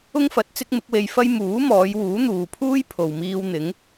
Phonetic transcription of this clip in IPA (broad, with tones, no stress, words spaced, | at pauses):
ʊ˥ŋfɐ˨˥t̚ t͡sɪ˥k̚mɪ˨˥k̚we˧j fɐ˥j muː˨˥mɔː˨˧j wuː˨˥n̪uː˨pʰuː˥j pʰo˨wmiː˧w n̪ɪ˨˥ŋ